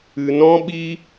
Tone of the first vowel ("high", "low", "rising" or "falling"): low